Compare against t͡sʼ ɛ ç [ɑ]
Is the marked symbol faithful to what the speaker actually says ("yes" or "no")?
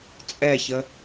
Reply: no